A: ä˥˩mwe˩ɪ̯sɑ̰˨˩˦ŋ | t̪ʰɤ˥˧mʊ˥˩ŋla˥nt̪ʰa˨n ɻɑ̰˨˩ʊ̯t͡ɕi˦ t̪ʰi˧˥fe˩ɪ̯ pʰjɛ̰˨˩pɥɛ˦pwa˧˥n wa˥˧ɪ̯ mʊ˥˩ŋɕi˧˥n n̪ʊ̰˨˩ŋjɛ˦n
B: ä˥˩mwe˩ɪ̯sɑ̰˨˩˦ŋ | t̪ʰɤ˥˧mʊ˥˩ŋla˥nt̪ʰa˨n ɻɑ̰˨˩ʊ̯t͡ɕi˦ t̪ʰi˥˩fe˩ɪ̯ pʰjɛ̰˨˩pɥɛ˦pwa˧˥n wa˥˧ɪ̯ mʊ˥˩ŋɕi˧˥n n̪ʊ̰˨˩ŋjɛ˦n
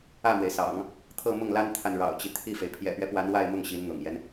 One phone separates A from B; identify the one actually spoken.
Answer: B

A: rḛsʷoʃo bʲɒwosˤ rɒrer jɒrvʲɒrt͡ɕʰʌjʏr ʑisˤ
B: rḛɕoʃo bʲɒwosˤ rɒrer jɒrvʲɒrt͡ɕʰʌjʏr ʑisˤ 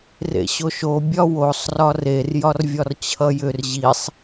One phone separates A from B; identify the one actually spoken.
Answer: B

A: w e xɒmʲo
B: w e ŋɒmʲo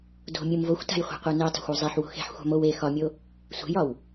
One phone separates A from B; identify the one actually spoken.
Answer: A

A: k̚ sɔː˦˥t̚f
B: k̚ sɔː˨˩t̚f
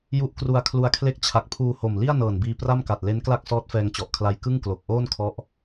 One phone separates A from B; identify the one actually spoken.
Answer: A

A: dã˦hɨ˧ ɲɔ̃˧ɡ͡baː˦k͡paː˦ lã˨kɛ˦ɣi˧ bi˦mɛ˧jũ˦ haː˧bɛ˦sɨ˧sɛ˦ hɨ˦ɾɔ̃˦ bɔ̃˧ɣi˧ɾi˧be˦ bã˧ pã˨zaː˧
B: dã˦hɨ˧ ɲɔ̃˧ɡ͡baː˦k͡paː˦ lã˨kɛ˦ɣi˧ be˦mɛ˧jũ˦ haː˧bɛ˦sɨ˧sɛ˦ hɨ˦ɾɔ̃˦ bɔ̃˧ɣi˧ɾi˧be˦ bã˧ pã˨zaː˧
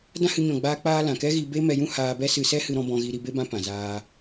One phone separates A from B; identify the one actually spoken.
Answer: B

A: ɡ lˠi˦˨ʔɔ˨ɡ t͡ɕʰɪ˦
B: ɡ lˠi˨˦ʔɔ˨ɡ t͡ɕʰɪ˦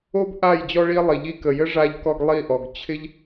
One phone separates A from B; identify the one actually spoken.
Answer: A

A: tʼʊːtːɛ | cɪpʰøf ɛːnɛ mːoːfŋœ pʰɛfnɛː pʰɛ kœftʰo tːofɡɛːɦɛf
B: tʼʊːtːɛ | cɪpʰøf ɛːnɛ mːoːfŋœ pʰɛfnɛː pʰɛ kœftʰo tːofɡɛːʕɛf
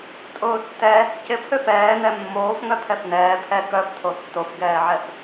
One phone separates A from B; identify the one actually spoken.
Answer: B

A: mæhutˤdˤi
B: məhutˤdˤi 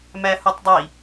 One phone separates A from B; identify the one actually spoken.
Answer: A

